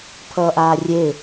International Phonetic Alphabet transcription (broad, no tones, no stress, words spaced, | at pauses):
pʰʌːʔaːrʲe